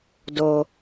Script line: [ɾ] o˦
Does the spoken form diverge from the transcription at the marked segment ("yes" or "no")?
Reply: yes